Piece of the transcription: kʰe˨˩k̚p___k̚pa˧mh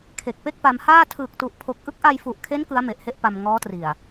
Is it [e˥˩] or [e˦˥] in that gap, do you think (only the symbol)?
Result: e˥˩